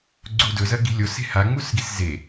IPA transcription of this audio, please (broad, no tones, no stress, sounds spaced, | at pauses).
ɡ͡ǀ u d ɵ z ɐ ɡ i̤ lʲ o s e̤ h a ŋ͡m u s ɡ i s z e